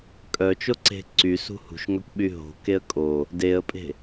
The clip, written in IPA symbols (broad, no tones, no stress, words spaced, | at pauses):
kʼœt͡ʃo ǀe̤ǀy sṳhṳʃŋœkʷɓy ɦo̤ keə̯kʼo | deə̯pʼe̤